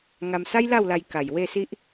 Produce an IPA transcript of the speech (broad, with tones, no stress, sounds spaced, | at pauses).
ŋ a˧ m s a˦ j l a˥˧ w l a˧ j k a˨˩ j w e˥˧ s i˦ ʔ